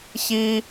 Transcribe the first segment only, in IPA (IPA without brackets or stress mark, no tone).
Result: ç